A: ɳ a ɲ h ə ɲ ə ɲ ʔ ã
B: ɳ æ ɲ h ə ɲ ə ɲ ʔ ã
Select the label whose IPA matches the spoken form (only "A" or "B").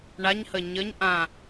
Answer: A